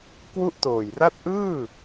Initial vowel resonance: oral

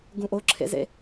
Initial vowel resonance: nasal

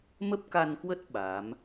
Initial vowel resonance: oral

